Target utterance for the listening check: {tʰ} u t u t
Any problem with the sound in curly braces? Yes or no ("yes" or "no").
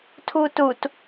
no